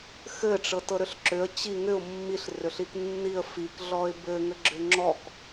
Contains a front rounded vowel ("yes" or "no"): yes